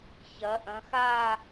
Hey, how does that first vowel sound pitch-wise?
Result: rising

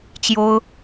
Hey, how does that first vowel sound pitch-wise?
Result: high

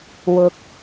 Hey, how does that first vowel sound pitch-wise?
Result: low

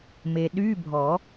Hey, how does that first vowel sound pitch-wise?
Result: low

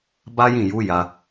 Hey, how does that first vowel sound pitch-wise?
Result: high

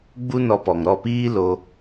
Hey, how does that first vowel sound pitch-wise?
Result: high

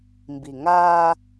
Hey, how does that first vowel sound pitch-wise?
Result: low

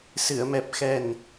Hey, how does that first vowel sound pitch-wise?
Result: low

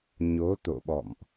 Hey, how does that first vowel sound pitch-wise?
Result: rising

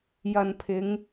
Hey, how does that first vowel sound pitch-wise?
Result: low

